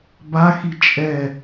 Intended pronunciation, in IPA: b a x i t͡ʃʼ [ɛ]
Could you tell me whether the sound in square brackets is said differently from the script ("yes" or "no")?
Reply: no